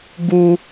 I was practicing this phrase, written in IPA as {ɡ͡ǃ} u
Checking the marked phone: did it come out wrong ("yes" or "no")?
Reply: yes